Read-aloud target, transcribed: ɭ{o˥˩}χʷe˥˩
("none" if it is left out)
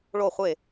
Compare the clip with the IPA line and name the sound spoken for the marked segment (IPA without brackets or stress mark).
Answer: o˥˩